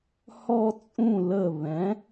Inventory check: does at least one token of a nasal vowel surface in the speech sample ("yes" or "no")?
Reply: yes